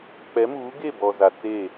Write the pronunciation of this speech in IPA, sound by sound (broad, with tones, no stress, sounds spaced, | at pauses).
k͡p ɛ˨˦ m uː˨˦ ɡ e˦˨ b ɔ˨ z a˨ t͡s e˦˨